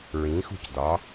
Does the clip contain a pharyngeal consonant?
no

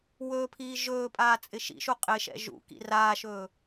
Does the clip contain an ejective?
yes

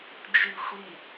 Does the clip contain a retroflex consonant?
no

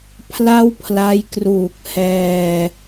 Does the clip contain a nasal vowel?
no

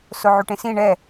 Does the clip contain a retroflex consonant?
yes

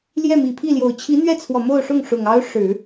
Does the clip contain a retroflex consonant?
yes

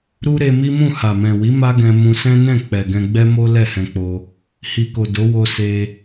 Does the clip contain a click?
no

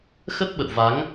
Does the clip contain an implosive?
yes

